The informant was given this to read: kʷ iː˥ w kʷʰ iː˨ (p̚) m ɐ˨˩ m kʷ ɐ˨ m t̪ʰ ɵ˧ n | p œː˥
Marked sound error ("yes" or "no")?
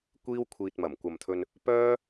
yes